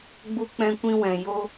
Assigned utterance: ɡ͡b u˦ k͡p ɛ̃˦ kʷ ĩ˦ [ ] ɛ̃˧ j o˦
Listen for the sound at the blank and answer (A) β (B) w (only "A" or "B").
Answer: B